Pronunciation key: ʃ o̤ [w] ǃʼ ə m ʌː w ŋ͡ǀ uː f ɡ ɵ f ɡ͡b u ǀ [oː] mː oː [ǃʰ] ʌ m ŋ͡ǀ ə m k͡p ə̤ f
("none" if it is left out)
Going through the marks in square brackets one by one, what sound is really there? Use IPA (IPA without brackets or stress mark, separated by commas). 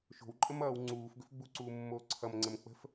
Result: w, uː, ǀʰ